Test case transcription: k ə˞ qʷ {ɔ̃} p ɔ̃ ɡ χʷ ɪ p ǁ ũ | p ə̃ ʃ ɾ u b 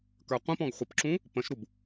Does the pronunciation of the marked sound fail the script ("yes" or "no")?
yes